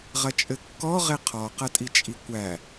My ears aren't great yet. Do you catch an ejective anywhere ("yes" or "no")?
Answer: yes